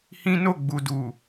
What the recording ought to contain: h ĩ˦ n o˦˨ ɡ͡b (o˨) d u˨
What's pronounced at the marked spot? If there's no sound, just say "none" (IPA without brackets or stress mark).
u˨